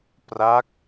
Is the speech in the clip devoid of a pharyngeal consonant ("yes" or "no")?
yes